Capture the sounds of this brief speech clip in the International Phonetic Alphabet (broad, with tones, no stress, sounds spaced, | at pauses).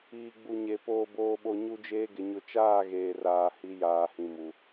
iː˨ ɡ͡b u˨ ɲ e˨ p oː˨ b oː˨ ɓ o˨ ɲ u˦ d͡ʒ eː˦ ɡ ɪ˨ ɲ ʊ˨ t͡ʃ aː˦˨ ɣ eː˨ r aː˨ h i˨˦ j aː˨ h ĩ˨ m u˨